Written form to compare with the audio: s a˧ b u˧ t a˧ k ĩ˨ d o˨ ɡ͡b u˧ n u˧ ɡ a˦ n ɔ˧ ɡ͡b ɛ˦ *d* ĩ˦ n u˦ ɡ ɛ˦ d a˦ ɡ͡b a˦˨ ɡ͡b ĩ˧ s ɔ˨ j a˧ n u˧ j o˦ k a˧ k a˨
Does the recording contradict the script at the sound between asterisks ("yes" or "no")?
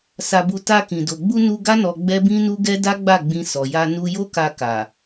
yes